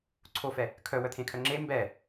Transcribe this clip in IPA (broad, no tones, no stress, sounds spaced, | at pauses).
ǀʰ o f ɛ | kʰ œ w œ t̪ʰ ẽ kʰ œ ŋ͡ǁ e m b ɛ